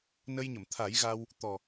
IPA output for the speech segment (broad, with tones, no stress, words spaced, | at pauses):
nə˧jɲə˨˩˨mt̪ʰa˨˩˦jɣa˧w | t̪ɔ˨˩